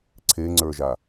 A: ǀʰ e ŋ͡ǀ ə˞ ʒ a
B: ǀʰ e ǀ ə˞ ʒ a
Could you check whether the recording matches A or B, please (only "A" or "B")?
A